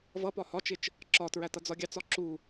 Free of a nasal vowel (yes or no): yes